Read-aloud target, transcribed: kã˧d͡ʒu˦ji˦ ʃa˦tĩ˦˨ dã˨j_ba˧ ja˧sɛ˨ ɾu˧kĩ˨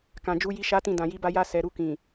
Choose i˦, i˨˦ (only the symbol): i˨˦